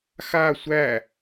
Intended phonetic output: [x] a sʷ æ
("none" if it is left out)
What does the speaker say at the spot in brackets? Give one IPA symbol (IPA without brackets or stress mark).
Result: x